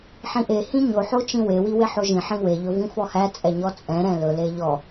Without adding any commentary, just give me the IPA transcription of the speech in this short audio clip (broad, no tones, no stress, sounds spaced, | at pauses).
ħ ĩ ʔ e h ĩ ɲ o ħ o t͡ʃ ĩ w e w i w e ħ o ʒ ĩ ħ ĩ w e ʎ ɵ v ĩ f ɔ h æ t͡sʼ ɛ ɲ ɔ t͡sʼ ɛ̃ ɾ ɛ̃ l ɵ l e ʎ ɔ